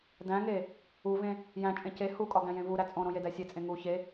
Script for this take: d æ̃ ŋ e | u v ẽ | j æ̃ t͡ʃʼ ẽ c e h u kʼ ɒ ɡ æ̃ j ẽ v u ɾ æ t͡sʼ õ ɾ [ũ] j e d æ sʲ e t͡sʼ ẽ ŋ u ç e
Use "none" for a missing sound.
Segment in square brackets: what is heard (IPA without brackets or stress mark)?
õ